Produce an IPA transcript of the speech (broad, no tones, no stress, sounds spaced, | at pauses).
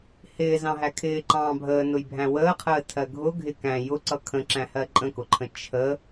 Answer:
h ɪː z ɑ̃ ɦ æ kʰ ɪː ǃ ɑ̃ː bʱ əː n ʊ j bʱ æ̃ w əː qʰ əː tʰ ɜ ɡʱ ʊ ɡʱ ɪ k æ̃ j ʊ ǀ ʌ kʰ ə̃ ǁ æ̃ h ɜ ǃʼ ə̃ k ʊ ǃʰ ə̃ t͡ʃʰ ə